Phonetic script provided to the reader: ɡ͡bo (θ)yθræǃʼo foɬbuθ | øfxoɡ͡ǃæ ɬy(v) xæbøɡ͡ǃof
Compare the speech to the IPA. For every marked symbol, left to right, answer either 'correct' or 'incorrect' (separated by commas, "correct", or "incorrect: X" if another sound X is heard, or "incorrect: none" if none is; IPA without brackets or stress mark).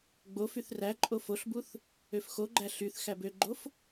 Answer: incorrect: f, incorrect: θ